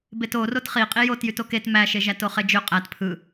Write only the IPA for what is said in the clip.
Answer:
b e t o r o t χ i qʼ i j o t j y t o k e t m æ ʃ e ʒ æ t o χ e d͡ʒ ø qʼ æ t pʰ ɯ

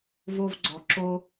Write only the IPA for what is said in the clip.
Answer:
v o˧ v ɡ͡ǀ ɔ˩ ǁ o˧

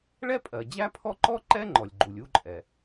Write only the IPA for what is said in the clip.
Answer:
ɭ ɛ˥ pʼ ɜ˩ d͡ʑ æ˥ pʰ ɔ˥ ǃ ɔ˥ ǃ ɛ˥ ŋ͡ǃ ɔ˩ lʲ ɡ͡ǃ u˩ lʲ u˥ ǃʼ ɛ˩

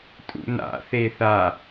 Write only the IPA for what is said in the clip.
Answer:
tʼ ṵ n a̰ θ e θ a

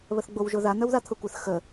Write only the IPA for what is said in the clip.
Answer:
β ə θ ɡ͡b o w ʒ ʊ ð a n̪ œ w ð a t̪ʰ ʊ kʷ ə θ x ə

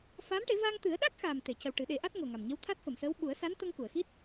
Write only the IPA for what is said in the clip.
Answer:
f aː˧˥ m ʈ e˨˩˦ v aː˧ ŋ t̪ ɨ˨˩˦ ə̯ ɗ a˦˥ k̚ x aː˨˩ m t̪ e˨˩˨ c ə˨˩ w ʈ ɨ˨˩˦ ɗ e˨˩˦ ʔ a˦˥ t̚ ŋ o˨˩ ŋ a˨˩ m ɲ ə˧˥ w t̪ʰ a˦˥ t̚ f ə˨˩˨ m s əː˧˥ w ɓ u˨˩˦ ə̯ s a˧˥ n t̪ ə˧ ŋ k u˨˩˨ ə̯ x i˦˥ t̚

